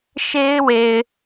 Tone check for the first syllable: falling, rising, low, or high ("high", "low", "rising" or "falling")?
high